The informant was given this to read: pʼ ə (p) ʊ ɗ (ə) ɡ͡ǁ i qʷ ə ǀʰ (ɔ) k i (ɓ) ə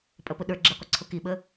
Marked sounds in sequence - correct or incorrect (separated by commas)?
correct, incorrect, incorrect, correct